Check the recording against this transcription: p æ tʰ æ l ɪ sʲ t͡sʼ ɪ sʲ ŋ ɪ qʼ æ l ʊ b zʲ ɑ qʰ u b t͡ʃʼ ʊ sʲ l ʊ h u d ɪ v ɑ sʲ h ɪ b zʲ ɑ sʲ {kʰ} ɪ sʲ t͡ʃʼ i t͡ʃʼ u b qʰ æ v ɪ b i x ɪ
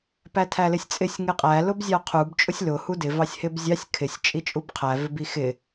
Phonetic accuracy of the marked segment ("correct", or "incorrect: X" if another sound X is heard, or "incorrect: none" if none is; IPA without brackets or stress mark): correct